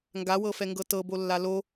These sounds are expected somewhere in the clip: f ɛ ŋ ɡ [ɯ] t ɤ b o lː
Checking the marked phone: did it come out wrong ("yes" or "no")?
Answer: yes